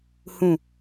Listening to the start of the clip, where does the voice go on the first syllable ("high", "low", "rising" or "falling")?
low